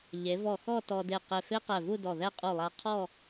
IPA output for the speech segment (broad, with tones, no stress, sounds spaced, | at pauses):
ʎ e˩˧ v ɔ˧˩ x ɔ˥˧ t ɔ˧ d e˧˩ q e˧˩ f e˥ q ɛ˧˩ v u˥˧ d ɔ˧˩ ð ɛ˥˧ qʼ u˧˩ lˠ a˧ qʰ ɔ˥˧